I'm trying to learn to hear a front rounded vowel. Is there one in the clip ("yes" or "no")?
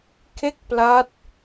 no